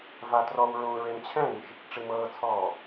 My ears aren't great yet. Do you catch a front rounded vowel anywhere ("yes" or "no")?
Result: no